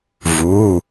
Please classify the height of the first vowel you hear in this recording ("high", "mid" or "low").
high